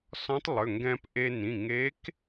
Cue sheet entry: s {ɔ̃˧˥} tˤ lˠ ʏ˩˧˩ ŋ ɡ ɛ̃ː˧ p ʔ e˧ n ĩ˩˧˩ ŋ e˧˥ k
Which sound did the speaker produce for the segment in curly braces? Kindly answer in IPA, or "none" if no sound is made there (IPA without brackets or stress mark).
ɔ̃˧˥